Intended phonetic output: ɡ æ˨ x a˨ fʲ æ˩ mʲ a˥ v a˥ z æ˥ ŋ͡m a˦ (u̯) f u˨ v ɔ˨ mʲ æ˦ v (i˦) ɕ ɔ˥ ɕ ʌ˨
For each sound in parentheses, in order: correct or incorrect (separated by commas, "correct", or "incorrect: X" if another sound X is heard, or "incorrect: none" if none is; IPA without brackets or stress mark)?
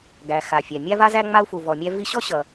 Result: correct, correct